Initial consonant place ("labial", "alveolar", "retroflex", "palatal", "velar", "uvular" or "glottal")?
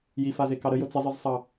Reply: palatal